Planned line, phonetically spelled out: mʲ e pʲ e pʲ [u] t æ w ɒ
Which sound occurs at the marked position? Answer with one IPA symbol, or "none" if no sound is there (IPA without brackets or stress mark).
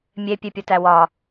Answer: o